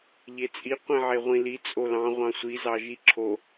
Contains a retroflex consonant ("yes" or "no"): no